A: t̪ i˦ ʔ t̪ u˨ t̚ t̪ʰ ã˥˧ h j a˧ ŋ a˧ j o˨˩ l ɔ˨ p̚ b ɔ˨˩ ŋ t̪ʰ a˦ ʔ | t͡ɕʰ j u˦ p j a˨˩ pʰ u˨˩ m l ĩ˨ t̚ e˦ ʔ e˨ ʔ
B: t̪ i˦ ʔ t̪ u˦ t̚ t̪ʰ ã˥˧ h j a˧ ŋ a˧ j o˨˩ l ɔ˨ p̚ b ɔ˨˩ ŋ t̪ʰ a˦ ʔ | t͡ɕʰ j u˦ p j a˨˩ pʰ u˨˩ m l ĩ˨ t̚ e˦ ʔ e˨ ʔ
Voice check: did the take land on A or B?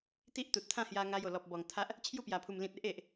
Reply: A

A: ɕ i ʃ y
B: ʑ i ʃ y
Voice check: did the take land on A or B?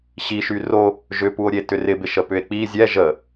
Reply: A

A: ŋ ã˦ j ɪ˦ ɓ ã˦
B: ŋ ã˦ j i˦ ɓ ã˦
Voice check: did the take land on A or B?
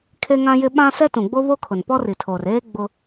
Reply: A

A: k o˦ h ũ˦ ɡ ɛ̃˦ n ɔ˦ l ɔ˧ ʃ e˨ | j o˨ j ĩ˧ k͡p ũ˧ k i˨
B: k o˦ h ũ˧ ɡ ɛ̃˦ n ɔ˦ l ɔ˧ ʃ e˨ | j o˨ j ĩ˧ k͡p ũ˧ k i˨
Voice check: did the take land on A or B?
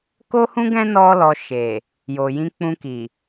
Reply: A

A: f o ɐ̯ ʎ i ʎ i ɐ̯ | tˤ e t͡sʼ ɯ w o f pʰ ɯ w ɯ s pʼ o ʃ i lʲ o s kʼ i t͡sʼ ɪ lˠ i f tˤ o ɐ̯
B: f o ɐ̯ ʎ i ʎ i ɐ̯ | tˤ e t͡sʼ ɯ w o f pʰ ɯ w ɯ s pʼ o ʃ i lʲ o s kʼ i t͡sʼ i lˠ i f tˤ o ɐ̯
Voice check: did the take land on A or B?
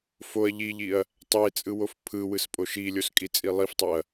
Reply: B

